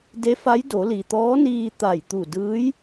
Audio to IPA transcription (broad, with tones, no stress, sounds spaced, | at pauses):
d e˧˥ f a˧˥ j d o˩˧ l i˩ t̪ ɔː˧˥ n iː˧ t̪ a˧˩ j t̪ u˧˩ d ɯː˧˥ j